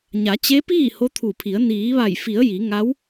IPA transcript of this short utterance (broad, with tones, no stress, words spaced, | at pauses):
ɲa˩˧t͡ɕe˧˥piː˥˨ ho˧˥t̪ʰu˧˩pʰi˩˧ə̯ niː˩˧ʋa˧˩jfi˩˧ə̯ ji˩˧ ŋa˧˥w